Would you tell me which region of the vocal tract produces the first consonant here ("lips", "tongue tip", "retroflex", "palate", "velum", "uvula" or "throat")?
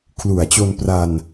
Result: velum